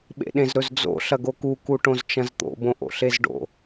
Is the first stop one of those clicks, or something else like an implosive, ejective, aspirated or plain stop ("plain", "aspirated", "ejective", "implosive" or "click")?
implosive